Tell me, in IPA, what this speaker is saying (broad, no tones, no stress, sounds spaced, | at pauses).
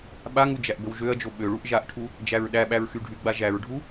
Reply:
ɓ a ŋ u d͡ʒ æ ʔ b ə w ʒ ø ɐ̯ d͡ʒ o ɓ ø ɭ u ʔ ʒ a ʔ ʈʰ u | d͡ʒ æ ɹ ɗ æ ɓ æ ɹ x y ɖʱ y ɡ͡b a ʒ æ ɹ ɖʱ u